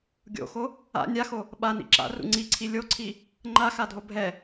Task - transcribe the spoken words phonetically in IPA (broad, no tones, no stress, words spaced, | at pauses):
ɡʲo̰xo | a̰ nʲaxo | ɓanḭ ǁa̰rṵ ŋ͡ǀiǀʰi lʲoǀʰi | ŋ͡ǃaxadʱo bʱɛ